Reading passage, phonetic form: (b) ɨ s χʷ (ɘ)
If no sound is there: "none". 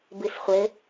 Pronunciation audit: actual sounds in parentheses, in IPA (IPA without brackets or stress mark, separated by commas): b, ɘ